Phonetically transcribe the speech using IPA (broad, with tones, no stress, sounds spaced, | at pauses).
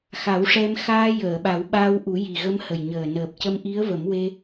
x a˨˩˦ w ʂ ɛ˧ m x aː˧ j əː˨˩˨ ɓ a˨˩˦ w ɓ aː˧ w ʔ u˨˩˦ j i˨˩ ɣ ə˧ m h ə˨˩ j ɲ əː˨˩ n əː˨˩ p̚ c ə˧ m ʔ i˧˥ ə̯ v ə˨˩˦ m w e˧